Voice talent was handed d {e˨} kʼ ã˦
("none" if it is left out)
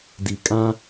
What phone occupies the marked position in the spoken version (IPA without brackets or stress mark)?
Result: i˨